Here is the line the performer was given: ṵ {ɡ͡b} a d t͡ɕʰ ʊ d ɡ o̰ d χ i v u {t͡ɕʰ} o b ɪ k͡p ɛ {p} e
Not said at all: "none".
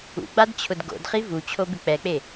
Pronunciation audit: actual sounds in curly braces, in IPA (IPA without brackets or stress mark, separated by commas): ɡ͡b, t͡ɕʰ, k͡p